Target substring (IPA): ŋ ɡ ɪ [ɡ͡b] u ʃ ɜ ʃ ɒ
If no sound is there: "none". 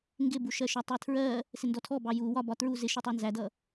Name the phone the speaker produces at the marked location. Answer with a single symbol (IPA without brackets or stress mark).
b